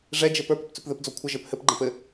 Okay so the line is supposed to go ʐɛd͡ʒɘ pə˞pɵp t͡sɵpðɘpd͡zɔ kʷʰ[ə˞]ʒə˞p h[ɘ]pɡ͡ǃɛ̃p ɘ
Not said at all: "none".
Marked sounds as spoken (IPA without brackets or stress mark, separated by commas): ə, ɘ